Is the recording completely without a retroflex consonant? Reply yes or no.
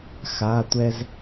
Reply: yes